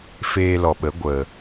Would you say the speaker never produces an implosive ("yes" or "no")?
no